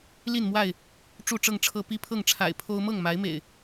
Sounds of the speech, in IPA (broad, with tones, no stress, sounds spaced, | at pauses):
l i˥˨ n m w a˥˨ ɪ̯ | ʈ͡ʂ u˥˨ ʈ͡ʂ ɤ˥˨ ŋ ʈ͡ʂʰ ɤ˦ p i˦ pʰ ɤ˥˨ ŋ ʈ͡ʂʰ a̰˨˩ ɪ̯ pʰ o˦ ʊ̯ m ɤ˥˨ ŋ m a˨˦ ɪ̯ m ḛ˨˩ ɪ̯